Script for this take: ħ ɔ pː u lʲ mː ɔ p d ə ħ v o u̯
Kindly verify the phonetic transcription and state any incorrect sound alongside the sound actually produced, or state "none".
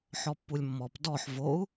ə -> ɔ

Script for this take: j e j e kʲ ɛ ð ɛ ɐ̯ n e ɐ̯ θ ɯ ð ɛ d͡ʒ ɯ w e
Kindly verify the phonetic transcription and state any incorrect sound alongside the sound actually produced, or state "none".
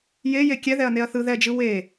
none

